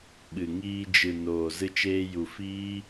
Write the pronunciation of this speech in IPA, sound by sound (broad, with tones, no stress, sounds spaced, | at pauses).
ɓ ɨ˨ ŋ iː˧ d͡ʒ ɨ˨ n oː˨ z ɨ˧ t͡ʃ eː˧ j u˨ f iː˦